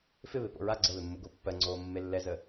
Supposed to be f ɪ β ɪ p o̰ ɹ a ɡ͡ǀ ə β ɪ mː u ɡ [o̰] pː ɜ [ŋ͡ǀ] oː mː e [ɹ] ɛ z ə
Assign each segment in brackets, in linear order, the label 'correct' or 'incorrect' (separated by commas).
incorrect, correct, incorrect